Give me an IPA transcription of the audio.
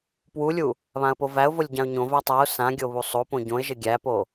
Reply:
p w u lʲ u | β ã ə̯ p o v æ ʊ̯ v o lʲ ɟ ã ʊ̯ ɲ õ v æ tˤ a ʊ̯ s ã ɡʲ o β u sˤ o p õ ɟ õ ɪ̯ ʒ ɘ ɡʲ æ p o

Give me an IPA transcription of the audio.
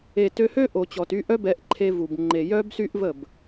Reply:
e˨ t ø˧ h ø˦ ʔ o˨ t͡ɕ ɔ˨ t y˧ ʔ œ˦ b ɛ˧ ʔ ǃʰ e˧ v u˨ b ŋ͡ǃ e˨ j œ˦ b s y˦ ʔ v ə˦˨ b

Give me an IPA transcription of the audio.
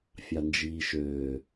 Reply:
fʲ ɑ n d͡ʒ iː ʃ øː

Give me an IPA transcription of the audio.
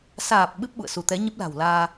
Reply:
s aː˨˩ p̚ ɓ ɨ˦˥ p̚ ɓ ṵ˧˨ ə̯ s u˧ t̪ ɛ˨˦ ɲ ə˦˥ p̚ l a̤˨˩ w l aː˧

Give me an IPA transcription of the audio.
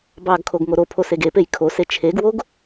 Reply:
b ɑ ɡ kʰ o ɡ ŋ o ɾ o pʰ o s e ɡ e p e j kʰ o s e t͡ʃʰ e ɡ w o ɡ

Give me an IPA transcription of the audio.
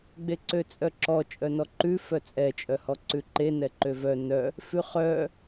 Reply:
ɡ͡b e ǀ ø t͡sʼ œ ǁ ɔ t͡ʃʼ œ n ɔ ǃ ʉ f œ t͡sʼ ɛ t͡ʃʼ œ h ɔ ǀ ʉ ǃ e n ɛ ǃ ø v œ n œ | f ʉ χ œ

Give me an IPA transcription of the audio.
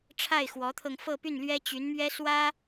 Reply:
ʈ͡ʂʰ a˥˩ ɪ̯ x w ɔ˧˥ t̪ʰ ɤ˧ ŋ f ɤ˥˧ p y˥˩ n l ɥ ɛ˥ t͡ɕ y˧˥ n m ɥ ɛ˥ s w ä˥

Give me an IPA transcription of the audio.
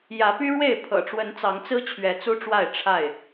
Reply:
j ä˨˦ p y˦ ɻ w e˥˨ ɪ̯ pʰ ɤ̰˨˩ ʈ͡ʂ w ə˨˦ n t͡s ɑ˨˦ ŋ t͡s ɹ̩˦ t͡ɕʰ ɥ ɛ˨˦ t͡s u˦ ʈ͡ʂ w a˥˨ ɪ̯ ʈ͡ʂʰ a˥˨ ɪ̯

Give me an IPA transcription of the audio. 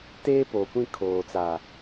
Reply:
t eː˦ p oː˨ kʷ ĩ˦˨ kʰ oː˨ t͡s a˨

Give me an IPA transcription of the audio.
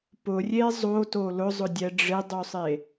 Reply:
p ʊ rʲ e zˤ o t o l ʊ zˤ ʊ dʲ ɛ ɖ͡ʐ ɪ dˤ u sˤ e

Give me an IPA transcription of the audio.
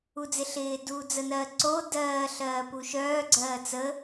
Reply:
u d͡z ɪ ɬ ɪː d uː d͡z ə n ɜ ǀ o d ɜː ɬ ɜː p u ʃ œː ɡ͡ǀ ɜː t͡s ə

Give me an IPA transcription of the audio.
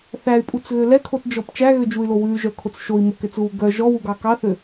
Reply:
θ æ y̯ pʼ u t͡s ɣ ø l ɛ kʰ o t d͡ʒ ɔ p t͡ʃ æ ɣ ø d͡ʒ u y̯ l o w ʉ y̯ ʒ œ kʰ o t͡s ʃ o i̯ m o k ɛ t͡s ɣ u ɡ œ ʒ ɔ w u ɡ ɑ k ɑ θ ø

